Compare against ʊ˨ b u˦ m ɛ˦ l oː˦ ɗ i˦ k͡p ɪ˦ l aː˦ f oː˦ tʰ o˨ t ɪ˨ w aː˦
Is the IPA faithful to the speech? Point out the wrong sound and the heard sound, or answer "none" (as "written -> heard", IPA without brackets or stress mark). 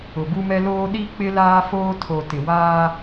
none